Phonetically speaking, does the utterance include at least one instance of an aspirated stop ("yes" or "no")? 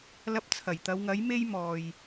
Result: yes